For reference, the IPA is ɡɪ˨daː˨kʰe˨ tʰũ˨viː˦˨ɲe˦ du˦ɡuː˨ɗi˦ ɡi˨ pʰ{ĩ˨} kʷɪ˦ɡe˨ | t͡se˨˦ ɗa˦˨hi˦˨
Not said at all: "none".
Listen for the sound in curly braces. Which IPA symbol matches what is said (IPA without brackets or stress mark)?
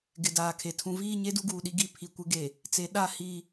i˨